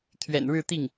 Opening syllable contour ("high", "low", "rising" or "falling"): low